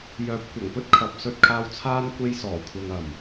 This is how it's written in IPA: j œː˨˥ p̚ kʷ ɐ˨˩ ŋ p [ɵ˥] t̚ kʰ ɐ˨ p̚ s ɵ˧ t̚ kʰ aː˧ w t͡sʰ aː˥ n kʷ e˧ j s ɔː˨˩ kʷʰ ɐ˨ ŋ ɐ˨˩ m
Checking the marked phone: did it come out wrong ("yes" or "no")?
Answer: no